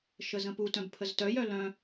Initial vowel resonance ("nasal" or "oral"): oral